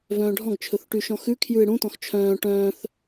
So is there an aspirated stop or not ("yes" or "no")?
yes